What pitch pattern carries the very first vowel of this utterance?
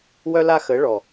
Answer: high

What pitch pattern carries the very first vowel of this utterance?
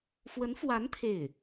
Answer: rising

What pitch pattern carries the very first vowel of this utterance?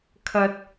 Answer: low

